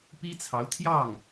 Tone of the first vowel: high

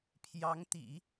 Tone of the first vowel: rising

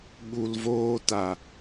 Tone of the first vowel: low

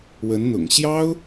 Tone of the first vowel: rising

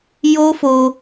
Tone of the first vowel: high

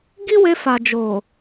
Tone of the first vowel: high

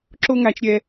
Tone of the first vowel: high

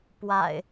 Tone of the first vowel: low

